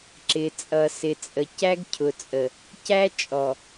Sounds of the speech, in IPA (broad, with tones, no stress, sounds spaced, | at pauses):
ǁ ɪ˨ t͡sʼ ʌ˨ s ɪ˨ t͡sʼ ə˨ c æ˦ ɡ cʰ ʊ˨ t͡sʼ ə˨ | c æ˦ t͡ʃʼ ɔ˨